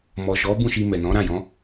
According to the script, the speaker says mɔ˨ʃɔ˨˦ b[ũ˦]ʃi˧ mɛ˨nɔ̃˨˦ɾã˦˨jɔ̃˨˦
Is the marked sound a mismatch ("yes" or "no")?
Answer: yes